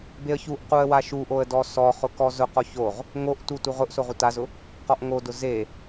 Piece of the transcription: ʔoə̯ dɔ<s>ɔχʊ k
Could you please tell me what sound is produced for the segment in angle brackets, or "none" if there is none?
s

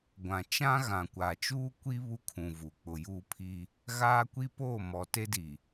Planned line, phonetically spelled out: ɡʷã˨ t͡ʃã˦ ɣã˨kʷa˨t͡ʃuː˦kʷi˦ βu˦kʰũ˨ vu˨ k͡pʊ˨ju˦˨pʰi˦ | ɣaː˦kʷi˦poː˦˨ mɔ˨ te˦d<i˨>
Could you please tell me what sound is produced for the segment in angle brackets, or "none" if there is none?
i˨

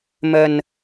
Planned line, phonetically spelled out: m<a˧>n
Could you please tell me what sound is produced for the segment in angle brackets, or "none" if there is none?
ə˧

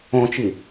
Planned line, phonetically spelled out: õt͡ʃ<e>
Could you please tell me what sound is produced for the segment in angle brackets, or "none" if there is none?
i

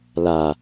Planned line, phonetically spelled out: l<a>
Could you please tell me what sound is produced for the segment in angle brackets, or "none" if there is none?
a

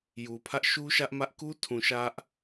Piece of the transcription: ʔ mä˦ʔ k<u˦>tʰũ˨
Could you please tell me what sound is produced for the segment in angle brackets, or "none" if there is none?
u˦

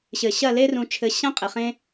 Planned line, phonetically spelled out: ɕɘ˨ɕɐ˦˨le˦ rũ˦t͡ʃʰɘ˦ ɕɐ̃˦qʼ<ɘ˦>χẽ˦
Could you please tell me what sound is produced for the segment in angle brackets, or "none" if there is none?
ɘ˨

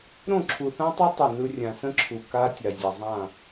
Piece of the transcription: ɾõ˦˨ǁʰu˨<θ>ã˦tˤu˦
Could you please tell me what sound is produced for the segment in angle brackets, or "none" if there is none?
θ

